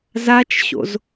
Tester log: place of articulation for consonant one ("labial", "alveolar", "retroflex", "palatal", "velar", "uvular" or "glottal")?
alveolar